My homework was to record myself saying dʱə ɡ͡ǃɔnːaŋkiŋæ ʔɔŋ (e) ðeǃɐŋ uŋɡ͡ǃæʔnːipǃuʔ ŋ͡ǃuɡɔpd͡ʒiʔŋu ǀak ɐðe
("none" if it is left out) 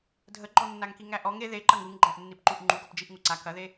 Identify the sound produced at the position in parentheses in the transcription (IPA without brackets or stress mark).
e